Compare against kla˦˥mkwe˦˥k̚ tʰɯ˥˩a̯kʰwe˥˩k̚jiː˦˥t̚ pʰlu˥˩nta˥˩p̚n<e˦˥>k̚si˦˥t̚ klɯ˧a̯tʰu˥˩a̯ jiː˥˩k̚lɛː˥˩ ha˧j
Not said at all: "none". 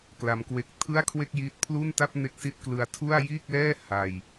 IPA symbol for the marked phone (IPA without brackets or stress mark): e˦˥